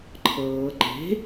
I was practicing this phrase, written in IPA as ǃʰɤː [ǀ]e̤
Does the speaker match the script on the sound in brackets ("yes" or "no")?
no